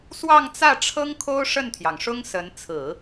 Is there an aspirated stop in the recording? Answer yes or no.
yes